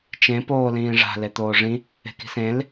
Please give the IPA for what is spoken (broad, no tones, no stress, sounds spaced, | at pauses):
t͡ʃ ẽ p oː l ĩː ʐ a̤ l e t̪ oː ʐ ĩ | e̤ k i̤ s ẽ l